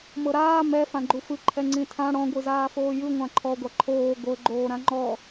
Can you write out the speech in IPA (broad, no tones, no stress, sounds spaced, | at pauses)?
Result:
m ɤ ɾ aː m ɛ f ã ɡ͡ǃ u f ɯ ǃʰ ɛ ŋ͡ǀ ĩ tʰ ã ɽ ɔ̃ ɡʷ ɯ z aː f oː j ɯ ŋʷ ã ǃʰ ɔ ɡʷ a ǃʰ oː ɡʷ ɤ ɡ͡ǃ oː ɾ ã ŋ͡ǃ ɔ